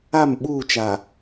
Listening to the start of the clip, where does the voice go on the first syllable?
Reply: falling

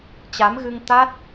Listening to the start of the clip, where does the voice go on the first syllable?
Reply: rising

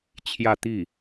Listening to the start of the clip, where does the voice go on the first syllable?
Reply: falling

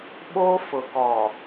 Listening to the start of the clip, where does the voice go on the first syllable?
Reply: high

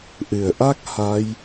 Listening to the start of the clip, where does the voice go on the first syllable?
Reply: low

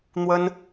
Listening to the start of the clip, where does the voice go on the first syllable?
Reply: high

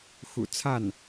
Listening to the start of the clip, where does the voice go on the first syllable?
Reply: low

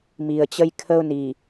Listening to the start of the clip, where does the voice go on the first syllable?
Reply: low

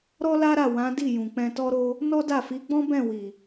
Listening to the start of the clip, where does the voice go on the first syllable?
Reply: high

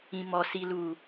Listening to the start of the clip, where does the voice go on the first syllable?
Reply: low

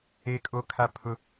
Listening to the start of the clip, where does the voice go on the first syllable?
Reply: high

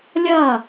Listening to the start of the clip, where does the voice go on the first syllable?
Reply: falling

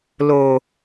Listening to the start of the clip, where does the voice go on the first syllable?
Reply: low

